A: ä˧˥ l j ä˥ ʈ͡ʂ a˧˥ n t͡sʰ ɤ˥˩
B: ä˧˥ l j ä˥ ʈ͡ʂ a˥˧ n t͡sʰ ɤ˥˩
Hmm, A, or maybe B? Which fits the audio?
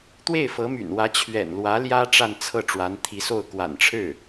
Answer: B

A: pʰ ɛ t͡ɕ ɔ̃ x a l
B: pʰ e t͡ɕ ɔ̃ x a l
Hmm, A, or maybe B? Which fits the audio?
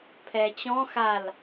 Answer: A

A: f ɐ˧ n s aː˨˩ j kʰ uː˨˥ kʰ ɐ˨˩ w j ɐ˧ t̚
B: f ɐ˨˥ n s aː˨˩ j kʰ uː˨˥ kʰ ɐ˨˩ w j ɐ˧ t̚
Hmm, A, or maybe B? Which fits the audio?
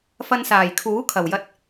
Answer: A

